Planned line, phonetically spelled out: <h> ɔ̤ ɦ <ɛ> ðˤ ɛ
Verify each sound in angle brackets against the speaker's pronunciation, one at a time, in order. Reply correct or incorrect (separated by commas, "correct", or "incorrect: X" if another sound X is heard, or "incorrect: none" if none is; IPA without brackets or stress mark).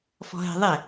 incorrect: f, incorrect: ɛ̤